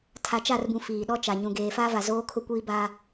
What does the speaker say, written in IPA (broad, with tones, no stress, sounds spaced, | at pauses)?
tʰ a˨ t͡ʃ a˦˨ r b ũ˨ f iː˨ ɗ ɔ˦ t͡ʃ a˨ ɲ ũ˨ ɡ eː˨ f a˦ v a˨ z oː˦ kʰ ʊ˦ kʷ iː˦ b aː˦